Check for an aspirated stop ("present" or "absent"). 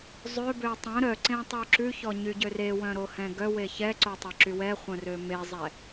absent